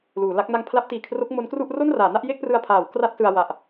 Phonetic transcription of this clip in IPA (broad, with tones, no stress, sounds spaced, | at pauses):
l uː˩˦ l a˦˥ k̚ n a˦˥ ŋ pʰ l a˦˥ p̚ t iː˨˩ kʰ r o˦˥ k̚ m o˦˥ n k r u˥˩ ʔ r o˥˩ n r aː˩˦ n a˥˩ ʔ j e˥˩ k̚ p r ɯ˧ a̯ pʰ aː˩˦ w k r a˥˩ t̚ s ɯ˧ a̯ w a˨˩ ʔ